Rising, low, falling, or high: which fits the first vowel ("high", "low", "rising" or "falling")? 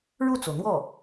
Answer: falling